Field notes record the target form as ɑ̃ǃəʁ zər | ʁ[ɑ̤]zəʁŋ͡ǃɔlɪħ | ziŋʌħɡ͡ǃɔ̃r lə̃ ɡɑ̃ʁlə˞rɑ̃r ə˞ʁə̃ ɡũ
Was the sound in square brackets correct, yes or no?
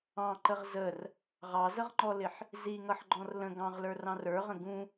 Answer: no